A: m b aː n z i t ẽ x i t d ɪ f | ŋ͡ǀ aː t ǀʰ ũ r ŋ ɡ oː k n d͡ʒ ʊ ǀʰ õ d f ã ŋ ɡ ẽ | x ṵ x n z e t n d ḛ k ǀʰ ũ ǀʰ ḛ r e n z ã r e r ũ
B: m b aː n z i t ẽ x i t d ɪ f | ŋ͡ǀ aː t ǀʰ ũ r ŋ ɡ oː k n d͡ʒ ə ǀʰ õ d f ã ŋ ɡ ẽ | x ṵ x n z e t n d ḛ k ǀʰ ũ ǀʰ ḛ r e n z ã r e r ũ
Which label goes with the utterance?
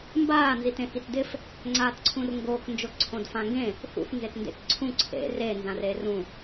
A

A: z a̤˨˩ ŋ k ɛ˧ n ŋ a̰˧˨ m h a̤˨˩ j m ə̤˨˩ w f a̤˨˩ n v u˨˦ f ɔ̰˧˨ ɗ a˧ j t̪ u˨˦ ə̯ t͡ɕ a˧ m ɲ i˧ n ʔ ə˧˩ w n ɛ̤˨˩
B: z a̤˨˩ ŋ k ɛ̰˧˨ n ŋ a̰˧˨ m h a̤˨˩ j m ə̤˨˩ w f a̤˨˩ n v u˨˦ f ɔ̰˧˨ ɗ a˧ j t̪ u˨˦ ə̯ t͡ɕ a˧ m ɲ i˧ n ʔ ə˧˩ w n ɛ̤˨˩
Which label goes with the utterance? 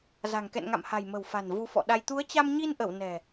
B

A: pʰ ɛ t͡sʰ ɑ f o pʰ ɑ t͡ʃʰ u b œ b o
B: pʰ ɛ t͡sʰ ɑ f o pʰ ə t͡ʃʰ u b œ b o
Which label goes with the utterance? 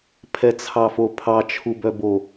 A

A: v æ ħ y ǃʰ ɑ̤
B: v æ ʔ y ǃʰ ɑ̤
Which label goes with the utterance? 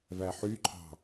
A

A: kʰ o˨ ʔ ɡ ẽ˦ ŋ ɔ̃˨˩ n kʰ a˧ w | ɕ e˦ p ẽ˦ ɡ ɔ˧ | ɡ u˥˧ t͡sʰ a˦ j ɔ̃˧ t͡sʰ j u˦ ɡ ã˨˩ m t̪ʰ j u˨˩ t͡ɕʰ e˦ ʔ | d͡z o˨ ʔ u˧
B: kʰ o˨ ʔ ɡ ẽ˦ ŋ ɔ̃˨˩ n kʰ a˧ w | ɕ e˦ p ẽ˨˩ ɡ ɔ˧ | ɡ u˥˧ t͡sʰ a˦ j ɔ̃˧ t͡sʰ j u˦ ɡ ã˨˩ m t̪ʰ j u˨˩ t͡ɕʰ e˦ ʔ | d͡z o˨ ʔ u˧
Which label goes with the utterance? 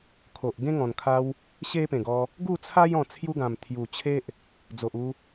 B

